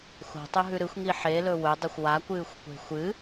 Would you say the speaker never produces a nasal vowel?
yes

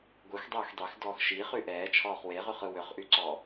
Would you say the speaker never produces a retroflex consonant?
yes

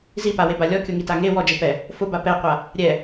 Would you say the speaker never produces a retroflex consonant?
yes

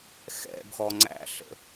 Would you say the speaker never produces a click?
no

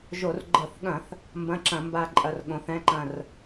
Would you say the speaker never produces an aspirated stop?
yes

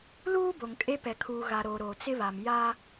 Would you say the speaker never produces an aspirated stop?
no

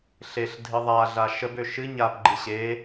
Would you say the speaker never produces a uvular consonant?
yes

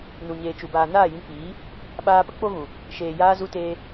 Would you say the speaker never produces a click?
yes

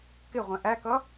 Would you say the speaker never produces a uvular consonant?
no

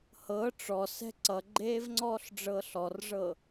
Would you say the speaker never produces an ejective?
yes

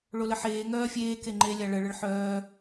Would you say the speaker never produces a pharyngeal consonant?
no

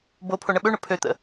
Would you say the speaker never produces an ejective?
yes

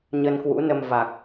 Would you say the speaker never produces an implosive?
yes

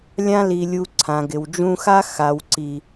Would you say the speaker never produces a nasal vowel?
no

